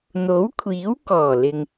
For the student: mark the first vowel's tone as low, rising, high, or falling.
rising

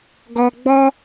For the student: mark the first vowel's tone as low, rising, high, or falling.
low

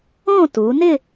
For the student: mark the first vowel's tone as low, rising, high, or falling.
falling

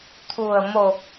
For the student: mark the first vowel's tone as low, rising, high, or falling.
low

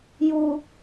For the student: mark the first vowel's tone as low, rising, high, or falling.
high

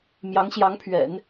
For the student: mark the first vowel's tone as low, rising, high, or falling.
rising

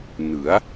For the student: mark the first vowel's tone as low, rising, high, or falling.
rising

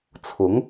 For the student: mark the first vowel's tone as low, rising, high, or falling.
rising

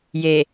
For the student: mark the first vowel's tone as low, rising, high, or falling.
low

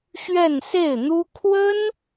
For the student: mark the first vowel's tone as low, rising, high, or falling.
falling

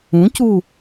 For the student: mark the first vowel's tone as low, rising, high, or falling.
rising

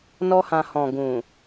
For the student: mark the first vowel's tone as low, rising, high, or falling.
high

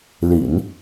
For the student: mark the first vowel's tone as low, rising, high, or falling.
low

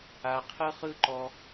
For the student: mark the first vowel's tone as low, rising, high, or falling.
low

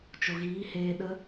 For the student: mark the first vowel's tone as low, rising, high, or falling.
low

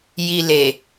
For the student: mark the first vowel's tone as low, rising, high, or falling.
low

